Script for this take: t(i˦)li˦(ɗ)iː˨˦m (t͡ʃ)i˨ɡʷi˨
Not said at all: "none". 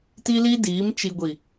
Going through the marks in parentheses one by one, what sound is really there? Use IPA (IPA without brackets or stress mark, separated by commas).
i˦, d, t͡ʃ